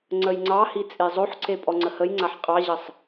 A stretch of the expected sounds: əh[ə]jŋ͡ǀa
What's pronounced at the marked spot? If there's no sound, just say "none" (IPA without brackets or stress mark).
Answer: ə